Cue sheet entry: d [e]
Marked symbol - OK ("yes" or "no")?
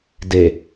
yes